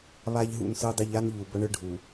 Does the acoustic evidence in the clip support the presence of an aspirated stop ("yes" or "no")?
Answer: no